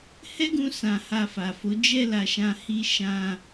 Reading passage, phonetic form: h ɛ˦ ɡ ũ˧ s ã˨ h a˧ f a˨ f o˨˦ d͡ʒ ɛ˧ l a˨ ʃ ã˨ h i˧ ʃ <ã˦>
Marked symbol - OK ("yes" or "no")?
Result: no